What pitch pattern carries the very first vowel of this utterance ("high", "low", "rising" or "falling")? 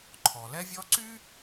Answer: low